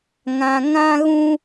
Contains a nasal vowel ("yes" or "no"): yes